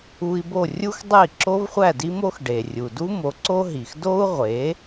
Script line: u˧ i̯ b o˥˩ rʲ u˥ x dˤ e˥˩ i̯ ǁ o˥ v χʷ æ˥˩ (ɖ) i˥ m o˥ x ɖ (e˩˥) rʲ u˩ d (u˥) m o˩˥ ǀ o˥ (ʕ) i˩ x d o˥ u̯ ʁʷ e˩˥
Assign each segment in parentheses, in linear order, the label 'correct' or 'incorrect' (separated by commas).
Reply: incorrect, incorrect, correct, incorrect